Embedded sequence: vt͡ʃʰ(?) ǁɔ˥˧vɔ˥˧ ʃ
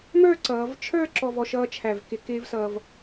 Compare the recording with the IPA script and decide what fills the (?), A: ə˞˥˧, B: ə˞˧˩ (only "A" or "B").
A